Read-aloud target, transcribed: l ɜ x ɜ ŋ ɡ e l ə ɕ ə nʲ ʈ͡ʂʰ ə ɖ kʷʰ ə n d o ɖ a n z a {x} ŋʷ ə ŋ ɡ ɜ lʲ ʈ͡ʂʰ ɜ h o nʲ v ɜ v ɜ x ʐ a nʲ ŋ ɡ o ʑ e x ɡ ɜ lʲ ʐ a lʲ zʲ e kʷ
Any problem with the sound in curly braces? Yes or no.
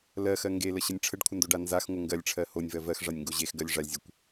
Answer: no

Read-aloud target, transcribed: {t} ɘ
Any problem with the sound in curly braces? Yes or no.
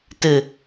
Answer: no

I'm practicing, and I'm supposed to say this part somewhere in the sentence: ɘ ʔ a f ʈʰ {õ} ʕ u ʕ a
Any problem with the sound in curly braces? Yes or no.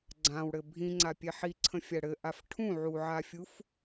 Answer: yes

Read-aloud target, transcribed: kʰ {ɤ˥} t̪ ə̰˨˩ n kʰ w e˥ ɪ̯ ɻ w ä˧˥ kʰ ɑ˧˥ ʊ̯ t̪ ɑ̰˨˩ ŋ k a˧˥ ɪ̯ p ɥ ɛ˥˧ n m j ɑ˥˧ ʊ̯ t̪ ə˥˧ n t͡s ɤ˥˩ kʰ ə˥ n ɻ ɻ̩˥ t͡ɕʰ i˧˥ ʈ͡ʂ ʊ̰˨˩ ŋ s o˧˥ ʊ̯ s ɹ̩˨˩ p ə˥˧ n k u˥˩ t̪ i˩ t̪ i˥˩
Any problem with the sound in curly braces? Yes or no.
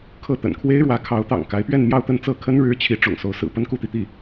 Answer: yes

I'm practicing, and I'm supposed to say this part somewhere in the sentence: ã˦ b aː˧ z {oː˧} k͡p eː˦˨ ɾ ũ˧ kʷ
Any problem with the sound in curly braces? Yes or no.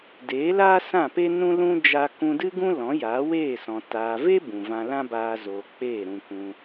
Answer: yes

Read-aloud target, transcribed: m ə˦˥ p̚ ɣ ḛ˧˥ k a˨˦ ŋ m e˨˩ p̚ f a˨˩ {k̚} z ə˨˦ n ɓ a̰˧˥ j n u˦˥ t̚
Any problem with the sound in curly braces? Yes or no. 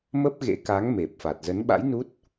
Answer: yes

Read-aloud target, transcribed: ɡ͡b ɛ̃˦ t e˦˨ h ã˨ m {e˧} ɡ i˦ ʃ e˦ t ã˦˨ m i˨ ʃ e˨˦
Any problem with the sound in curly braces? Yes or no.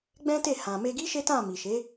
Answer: no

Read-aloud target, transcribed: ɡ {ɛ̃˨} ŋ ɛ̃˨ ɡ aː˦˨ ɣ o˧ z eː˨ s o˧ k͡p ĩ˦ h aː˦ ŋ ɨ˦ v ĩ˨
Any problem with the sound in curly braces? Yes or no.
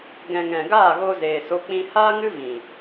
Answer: no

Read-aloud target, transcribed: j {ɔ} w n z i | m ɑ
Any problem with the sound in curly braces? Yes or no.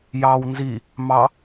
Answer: yes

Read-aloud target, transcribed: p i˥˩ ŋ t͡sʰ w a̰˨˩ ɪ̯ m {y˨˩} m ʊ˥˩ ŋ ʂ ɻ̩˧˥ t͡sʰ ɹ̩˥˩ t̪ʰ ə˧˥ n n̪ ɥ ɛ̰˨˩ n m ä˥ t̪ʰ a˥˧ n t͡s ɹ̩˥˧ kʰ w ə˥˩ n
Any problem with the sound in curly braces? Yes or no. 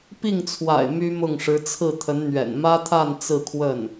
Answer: yes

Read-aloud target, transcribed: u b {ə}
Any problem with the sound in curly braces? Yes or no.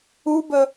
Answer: no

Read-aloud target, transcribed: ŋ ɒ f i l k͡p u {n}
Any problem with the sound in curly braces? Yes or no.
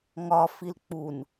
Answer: no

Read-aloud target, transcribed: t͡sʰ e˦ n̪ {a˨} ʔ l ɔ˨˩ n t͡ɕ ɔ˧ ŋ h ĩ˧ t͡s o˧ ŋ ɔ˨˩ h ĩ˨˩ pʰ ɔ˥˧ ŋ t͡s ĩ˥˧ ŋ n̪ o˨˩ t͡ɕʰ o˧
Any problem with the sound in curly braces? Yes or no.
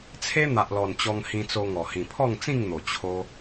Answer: no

